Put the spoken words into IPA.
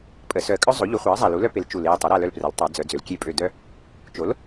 pʼ ə˨˩˦ s œ˨˩ ə̯ kʼ œ˦ zˤ o˩˥ ʎ u˩˥ χʷ a˩˥ ə̯ zˤ a˨˩ l u˩˥ l œ˦ p e˩˥ l t͡ʃ u˨˩ l e˦˨ ə̯ tˤ ɛ˩˥ ɾ a˦˨ l œ˦˨ l p r ɛ˩˥ l tˤ a˨˩˦ d͡z œ˨˩˦ d͡z ø˩˥ l kʲ e˦˨ pʼ ø˦˨ d œ˦ | t͡ʃ o˩˥ l

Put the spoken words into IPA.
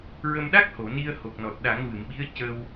ɹ ə˧ m ɗ a˦˥ k̚ h o˨˩˨ n i˧ ə̯ h o˨˩ k̚ n ɔ˨˩ t̚ ɗ a˨˩˦ ŋ v ɨ˨˩˨ m ɓ i˧˥ ə̯ c ə˧ w

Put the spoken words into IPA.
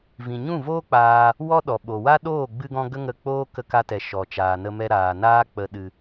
v ĩ˨ ɲ ũ˦˨ v oː˦ k͡p aː˧ | w ɔ˦ ɗ ɔ˨ ɓ o˨ w a˦ ɗ oː˦˨ ɡ͡b ɨ˧ ɡ ɔ̃˧ ɡ ə˦ ŋ ə˧ k͡p oː˦ k ə˧ k a˧ t ɛ˨ ʃ ɔ˨ t͡ʃ aː˨ n ə˧ m ɛ˧ ɾ aː˨ n aː˦ k͡p ə˧ ɗ ɨ˧

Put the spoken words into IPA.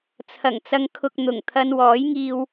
t͡sʰ ɐ˨˩ ŋ t͡s ɐ˧ ŋ kʰ ʊ˧ k̚ n̪ ʊ˨˩ ŋ t̪ʰ ɐ˧ n w ɔː˨˥ j ŋ iː˧ w

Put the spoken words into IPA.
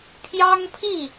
pʰ j ɑ˥ ŋ pʰ i˥˩

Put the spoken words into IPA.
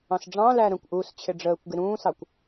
ɑ̃ s ɖ͡ʐ ɑ̃ l æ ɾ ə̃ kʷ ʔ uː s t͡ɕʰ ɪ ɖ͡ʐ əː kʷ ɡ ɪ ɾ ũː s ɑ kʷ

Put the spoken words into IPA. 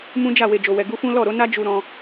m ũ˦ d͡ʒ a˦˨ w e˨ d͡ʒ o˨ w ɛ˨ ɡ u˧ f ũ˦ l ɔ˦˨ ɾ o˨˦ n a˦ d͡ʒ u˧ ɾ ɔ̃˧

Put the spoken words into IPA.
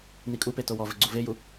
n i kʼ u p e t o w ɔ v ɘ ɡ͡ǀ u v e j u

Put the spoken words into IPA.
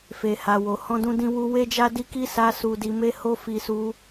f e˨ h a˨ w o˨ h ɔ̃˧ d ũ˧ d ĩ˧ w u˧ w e˦ d͡ʒ a˦ d i˦ k i˦ s a˧ s u˧ d i˧ m e˦ h o˦ f i˧ s u˧

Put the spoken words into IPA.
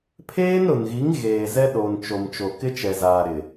pʰ eː˦ n ɾ ʊ˨ n ɣ i˨˦ ŋ ɣ eː˨ z ɛ˦ ɗ o˨ n t͡ʃ o˨ m t͡ʃ o˨ k ɪ˦ t͡ʃ ɛ˨ z aː˨ ɾ ɪ˨

